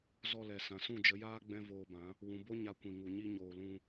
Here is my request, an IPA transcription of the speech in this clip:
zɔ˧lɛ˨ sã˨sũ˦˨d͡ʒə˨˦jaː˦ ɡ͡bɛ̃˦voː˧bã˨˦ | wũ˨bo˦ ɲa˧kʷĩ˨ŋu˨ ɲi˧ɲoː˨lũ˧

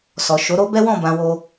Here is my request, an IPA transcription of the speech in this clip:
sɔ˨ ʃo˨˦ɾo˦bɛ˦wɔ̃˦˨ bã˧wo˧

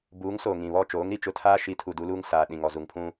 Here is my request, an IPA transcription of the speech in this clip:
buː˨˦ŋsoː˨ ŋĩ˨βɔ˦˨ t͡ʃoː˨˦ŋɾi˨t͡ʃʊ˦tʰaː˦ ʃi˨˦tʰu˨ du˦luː˦ŋ saː˨ ɗĩ˨ŋ ɔ˨zu˨ŋpʰũ˦

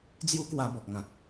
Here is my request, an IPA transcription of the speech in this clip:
d͡zju˦kwa˧ bɔ˨k̚ŋã˨t̚

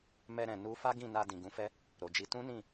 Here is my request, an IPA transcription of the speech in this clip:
mɛ˧ɾɛ̃˨ nu˧ fa˦ɡĩ˦˨na˧ dĩ˨ɡũ˨˦fɛ˦ | ɾo˨d͡ʒi˧ tũ˦nĩ˦˨

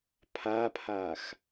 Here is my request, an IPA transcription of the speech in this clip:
pʰapʰax

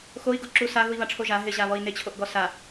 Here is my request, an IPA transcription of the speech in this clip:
xoi̯ɡoǁu saɣui̯βaʈ͡ʂʰo ʒa ɦɪʑaβɔi̯ nɪt͡ɕʰoʔɡɔ sa

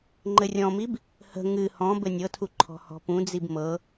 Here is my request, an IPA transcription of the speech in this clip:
ŋ͡ǃɘrʲɔ̃mib | hə̤ ŋɨ hɔ̃ bɘnʲɤtʰu ǃʰɔ̤hɔ̤pũd͡zib mɤ

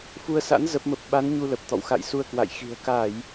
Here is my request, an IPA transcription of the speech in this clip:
fu˧ə̯sa̰˧˥n zə˦˥p̚mə˦˥p̚ ɓa˨˦n ɲu˧lə˨˩p̚t̪ɔ̰˧˨w xa̰˧˨j su˧ə̯kwa̰˧˨jxi̤˨˩ə̯ ka˧˩˨j

